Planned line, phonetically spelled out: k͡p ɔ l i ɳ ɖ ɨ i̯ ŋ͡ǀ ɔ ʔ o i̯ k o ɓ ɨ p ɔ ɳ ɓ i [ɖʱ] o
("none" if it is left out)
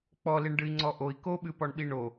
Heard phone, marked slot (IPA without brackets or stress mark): ɳ